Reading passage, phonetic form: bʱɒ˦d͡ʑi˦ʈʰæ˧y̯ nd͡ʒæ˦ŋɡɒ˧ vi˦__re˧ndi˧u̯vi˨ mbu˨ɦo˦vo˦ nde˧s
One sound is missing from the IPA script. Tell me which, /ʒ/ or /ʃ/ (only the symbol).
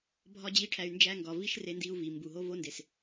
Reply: ʃ